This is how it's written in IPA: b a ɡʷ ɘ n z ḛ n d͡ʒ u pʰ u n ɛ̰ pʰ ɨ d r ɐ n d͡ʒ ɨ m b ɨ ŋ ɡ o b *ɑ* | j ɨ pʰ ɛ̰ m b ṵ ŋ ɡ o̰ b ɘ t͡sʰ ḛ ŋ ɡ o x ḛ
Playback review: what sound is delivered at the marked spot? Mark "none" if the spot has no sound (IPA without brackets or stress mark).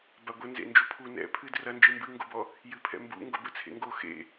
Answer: ɔ